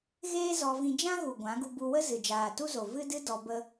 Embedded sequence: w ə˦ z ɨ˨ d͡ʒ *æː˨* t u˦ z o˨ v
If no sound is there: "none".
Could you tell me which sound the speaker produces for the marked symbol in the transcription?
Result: aː˨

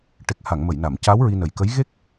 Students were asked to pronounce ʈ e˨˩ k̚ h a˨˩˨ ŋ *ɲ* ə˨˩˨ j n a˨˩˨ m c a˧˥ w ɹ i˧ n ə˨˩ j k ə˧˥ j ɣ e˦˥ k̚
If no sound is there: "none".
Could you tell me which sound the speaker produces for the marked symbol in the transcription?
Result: m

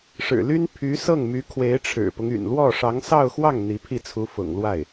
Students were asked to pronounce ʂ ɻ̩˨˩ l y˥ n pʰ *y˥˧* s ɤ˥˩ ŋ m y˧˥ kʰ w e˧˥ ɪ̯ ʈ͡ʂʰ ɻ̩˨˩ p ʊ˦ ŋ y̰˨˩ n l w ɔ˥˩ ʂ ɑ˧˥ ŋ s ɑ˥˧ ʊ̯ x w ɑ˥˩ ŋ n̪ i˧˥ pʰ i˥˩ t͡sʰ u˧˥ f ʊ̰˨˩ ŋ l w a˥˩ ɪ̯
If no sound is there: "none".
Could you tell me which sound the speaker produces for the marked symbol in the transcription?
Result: y˧˥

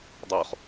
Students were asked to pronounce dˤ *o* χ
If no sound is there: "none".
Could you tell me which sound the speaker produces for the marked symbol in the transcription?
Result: o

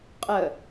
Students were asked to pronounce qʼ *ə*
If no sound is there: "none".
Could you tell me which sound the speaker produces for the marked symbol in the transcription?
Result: ə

